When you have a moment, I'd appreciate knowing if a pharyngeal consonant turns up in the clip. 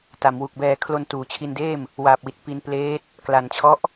no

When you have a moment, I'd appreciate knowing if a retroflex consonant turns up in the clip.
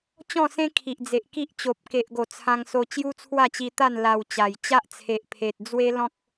no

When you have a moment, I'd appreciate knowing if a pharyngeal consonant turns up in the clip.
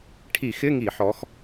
yes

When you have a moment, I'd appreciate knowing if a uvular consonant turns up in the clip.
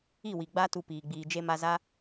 no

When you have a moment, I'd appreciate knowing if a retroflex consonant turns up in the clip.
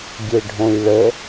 yes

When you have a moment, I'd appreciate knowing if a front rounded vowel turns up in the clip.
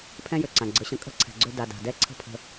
yes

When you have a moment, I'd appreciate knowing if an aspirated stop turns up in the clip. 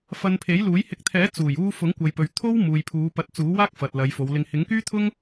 yes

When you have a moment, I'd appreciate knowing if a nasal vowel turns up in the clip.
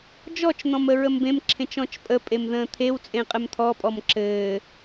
yes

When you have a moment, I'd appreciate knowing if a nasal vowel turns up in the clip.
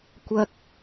no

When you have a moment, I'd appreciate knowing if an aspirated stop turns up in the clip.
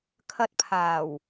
yes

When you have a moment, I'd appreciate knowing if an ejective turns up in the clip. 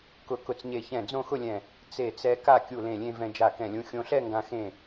no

